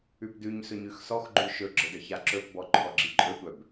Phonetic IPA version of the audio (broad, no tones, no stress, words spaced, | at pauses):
ʉpdʉɲsɵɲ ʉxsɔxɡ͡ǃʉ ʃɵɡ͡ǁə ɖəçaǁɵpbɔ ǃʰɔɡ͡ǁiǃʼɵtʷœb